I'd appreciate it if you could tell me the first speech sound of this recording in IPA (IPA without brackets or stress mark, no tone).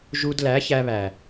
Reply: ʒ